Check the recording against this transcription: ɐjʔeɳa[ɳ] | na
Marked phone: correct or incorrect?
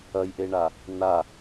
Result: incorrect